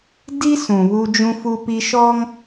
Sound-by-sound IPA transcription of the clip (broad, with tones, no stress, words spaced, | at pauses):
di˦ sũ˨βu˦ d͡ʒũ˦fu˦pi˦ʃɔ˦ŋ